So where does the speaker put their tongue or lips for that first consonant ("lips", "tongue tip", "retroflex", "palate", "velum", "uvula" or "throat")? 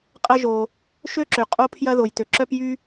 uvula